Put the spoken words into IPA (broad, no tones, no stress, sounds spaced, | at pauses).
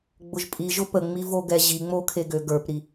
ɡ͡b ʊ ʒ pʼ i ʒ ʊ p ə ŋ͡m i v o ɡ ɛ ʑ i ŋ͡m o kʰ e ɡ ø ɡ ə˞ p ɾ i